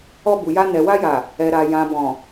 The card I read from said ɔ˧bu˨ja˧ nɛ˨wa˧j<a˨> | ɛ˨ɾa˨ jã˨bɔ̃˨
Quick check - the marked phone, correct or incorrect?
correct